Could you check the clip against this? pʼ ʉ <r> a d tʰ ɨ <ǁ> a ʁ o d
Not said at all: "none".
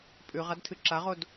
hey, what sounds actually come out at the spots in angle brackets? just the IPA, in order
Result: ʁ, ǁ

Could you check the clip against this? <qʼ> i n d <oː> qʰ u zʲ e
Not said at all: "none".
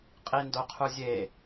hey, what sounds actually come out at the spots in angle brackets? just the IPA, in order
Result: qʼ, o

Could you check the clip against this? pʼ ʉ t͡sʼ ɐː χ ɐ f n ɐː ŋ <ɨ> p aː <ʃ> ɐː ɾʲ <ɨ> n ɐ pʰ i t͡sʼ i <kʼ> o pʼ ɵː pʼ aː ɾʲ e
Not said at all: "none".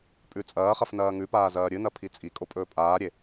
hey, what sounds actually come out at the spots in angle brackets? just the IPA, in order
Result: ʉ, z, ɨ, kʼ

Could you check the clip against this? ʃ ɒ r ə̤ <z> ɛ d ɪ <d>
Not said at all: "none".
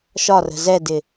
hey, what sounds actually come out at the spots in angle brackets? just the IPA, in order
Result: z, none

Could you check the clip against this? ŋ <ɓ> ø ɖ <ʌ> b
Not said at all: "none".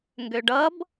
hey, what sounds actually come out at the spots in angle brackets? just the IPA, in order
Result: ɡ, ʌ

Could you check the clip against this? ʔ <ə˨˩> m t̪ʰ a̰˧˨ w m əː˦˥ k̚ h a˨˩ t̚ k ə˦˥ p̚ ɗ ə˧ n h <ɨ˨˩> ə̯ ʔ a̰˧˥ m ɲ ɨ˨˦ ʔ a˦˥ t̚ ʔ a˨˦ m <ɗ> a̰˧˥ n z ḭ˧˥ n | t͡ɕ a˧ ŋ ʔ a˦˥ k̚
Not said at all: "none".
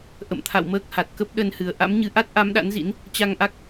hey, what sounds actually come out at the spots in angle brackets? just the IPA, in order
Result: ə̰˧˨, ɨ˨˩, ɗ

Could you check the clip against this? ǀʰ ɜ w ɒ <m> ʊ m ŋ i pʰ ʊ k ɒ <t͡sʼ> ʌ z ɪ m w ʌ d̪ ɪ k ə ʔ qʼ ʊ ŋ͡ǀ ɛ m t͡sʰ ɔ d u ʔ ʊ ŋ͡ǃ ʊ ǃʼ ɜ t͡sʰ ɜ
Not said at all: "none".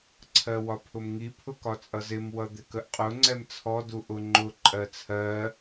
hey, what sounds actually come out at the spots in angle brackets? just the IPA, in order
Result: pʰ, t͡sʼ

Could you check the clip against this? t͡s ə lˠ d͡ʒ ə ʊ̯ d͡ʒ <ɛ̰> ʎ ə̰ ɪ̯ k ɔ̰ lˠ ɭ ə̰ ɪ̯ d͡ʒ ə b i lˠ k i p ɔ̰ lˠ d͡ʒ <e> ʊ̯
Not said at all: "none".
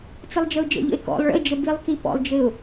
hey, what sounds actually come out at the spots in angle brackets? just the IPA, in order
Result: ə̰, ɘ

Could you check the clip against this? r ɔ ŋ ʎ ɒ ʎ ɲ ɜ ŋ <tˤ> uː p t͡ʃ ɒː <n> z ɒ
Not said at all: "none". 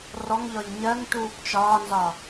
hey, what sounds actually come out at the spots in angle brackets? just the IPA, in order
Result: t, n

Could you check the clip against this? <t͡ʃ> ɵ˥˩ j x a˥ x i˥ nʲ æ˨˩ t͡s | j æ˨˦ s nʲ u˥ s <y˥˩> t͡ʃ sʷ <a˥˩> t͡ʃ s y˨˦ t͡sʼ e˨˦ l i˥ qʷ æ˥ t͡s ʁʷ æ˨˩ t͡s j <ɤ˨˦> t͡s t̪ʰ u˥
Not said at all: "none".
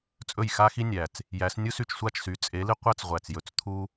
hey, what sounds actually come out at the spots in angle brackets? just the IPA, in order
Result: t͡sʼ, y˥˩, a˥˩, ɵ˨˦

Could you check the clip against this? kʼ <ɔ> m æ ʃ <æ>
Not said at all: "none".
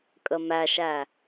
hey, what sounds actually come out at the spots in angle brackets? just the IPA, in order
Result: ə, æ

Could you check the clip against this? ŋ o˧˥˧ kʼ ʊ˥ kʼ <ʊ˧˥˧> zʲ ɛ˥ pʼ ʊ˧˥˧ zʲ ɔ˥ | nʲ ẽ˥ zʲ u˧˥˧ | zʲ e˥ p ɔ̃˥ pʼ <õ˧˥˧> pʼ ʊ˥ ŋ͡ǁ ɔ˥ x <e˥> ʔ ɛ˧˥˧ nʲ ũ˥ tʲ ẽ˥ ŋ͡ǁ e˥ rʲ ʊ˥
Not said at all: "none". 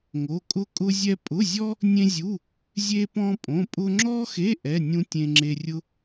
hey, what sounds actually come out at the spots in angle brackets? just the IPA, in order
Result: ʊ˥, õ˧˥˧, e˧˥˧

